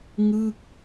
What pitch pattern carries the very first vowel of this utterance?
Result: falling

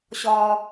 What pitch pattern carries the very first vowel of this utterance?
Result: low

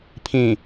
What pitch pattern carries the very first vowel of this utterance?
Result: low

